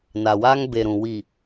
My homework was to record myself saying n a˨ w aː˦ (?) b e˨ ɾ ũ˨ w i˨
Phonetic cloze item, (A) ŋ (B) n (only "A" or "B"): A